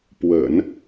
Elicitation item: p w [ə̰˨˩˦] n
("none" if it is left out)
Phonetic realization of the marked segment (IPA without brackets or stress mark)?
ə̰˨˩˦